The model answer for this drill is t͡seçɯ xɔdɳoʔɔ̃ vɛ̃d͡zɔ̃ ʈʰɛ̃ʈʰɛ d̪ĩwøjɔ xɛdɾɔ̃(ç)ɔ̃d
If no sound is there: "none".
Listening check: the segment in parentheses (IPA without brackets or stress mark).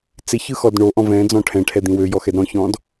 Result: ç